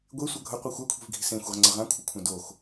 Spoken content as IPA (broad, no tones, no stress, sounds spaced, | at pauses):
ɡʷ e sʷ ʌ ɡʱ ʌ qʷ i xʷ a kʷʰ i̤ v ɡʱ i̤ s ẽ xʷ e ʁ ŋ͡ǀ ʌ ʁ ã kʷʰ ɯ kʷʰ ã d o x